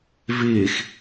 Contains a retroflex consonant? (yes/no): no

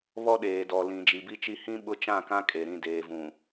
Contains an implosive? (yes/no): yes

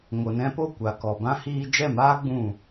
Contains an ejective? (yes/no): no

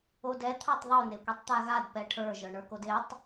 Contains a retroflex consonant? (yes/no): yes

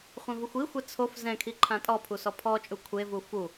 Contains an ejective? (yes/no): yes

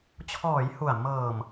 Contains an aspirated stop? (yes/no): yes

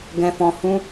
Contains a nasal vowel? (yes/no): yes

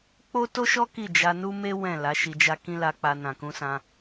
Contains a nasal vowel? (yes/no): yes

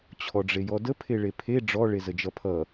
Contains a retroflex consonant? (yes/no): yes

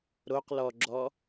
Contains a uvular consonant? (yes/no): yes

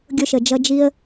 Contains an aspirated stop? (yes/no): no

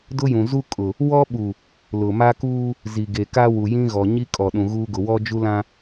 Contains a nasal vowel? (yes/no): yes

